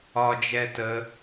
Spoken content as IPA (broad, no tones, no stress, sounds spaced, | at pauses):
ɒ d͡ʒ ɛ t ə